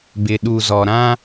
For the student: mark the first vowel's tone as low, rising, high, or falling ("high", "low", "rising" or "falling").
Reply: low